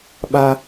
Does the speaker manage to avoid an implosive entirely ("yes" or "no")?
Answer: no